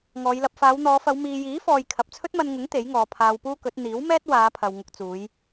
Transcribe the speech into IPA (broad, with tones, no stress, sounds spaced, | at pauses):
ŋ ɔː˨˧ j l ɐ˧ p̚ f aː˨˧ w n̪ ɔː˨˧ f ɐ˨˧ w m iː˨ j iː˨˥ f ɔː˨ j kʰ ɐ˨ p̚ t͡sʰ ɵ˥ t̚ m ɐ˧ n ŋ ʊ˨˥ ŋ t̪ e˨˥ j ŋ ɔː˨˧ pʰ aː˧ w p uː˥ k ɵ˨˥ t̚ n̪ iː˨˥ w m ɛː˥ t̚ w aː˨˧ pʰ ɐ˨ w ŋ ʊ˧ k̚ t͡s uː˨˧ j